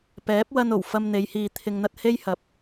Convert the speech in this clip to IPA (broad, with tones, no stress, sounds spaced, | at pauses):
p ɛː˨˥ p̚ w ɐ˧ n o˨˩ w f ɐ˧ m n̪ e˨˧ j h iː˨ t̪ʰ ɪ˨ ŋ n̪ ɐ˧ t̚ h e˥ j h ɐ˨˥ p̚